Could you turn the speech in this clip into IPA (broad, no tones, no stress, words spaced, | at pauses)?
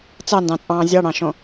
t͡sɑndɑ̃t͡sʼɑ̃ː zʲɑɽɑ̃ʃõ